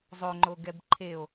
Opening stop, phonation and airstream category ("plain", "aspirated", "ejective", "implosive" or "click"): click